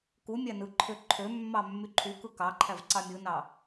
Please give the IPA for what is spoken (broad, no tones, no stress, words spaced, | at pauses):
ku mʲænɯǃʰø ǃʰømːɑ mːyǃʰukɯ kɑǃʰæv ǀɑmʲɯnɑ